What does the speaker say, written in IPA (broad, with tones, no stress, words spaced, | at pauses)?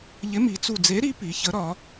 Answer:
ʎɪ˨˥mi˩˧t͡su˧˩ d͡ze˨˥ɾi˨˥ pi˩˧çə˨˥ɾɒ˩˧